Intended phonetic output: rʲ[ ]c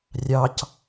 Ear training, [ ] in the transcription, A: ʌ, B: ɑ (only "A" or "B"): B